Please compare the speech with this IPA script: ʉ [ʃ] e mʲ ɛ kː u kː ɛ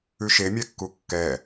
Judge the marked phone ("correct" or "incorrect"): correct